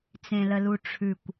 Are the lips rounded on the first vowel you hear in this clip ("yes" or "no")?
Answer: no